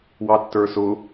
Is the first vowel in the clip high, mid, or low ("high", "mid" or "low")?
low